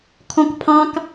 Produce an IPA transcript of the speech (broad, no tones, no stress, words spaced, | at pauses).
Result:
kʰɔ̃kpʰɑ̃k